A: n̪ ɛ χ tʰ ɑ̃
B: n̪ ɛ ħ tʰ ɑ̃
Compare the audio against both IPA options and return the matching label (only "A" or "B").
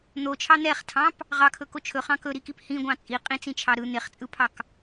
A